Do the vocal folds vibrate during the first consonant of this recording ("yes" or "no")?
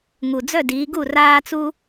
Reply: yes